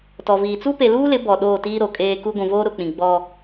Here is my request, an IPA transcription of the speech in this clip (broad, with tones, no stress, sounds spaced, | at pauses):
t ɔ˨ v iː˨ t͡s u˦ p e˨ l uː˦ l ɪ˨˦ b ɔ˨ ɗ oː˦˨ t iː˦ ɾ o˨ kʼ eː˦ k u˦ ɡʷ ũ˨ v oː˦ ɾ ʊ˨ k͡p ĩ˨ ɡ͡b ɔ˦